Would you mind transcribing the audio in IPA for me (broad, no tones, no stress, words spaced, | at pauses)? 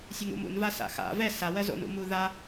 sʲɵŋṵmṵnva sa̰xa̰ vɛ sawɜ zo̰nṵmu ða